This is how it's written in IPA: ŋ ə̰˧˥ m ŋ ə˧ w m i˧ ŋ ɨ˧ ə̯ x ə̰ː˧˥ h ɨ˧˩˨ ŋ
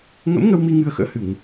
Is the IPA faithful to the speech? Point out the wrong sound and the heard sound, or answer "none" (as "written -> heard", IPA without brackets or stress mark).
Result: none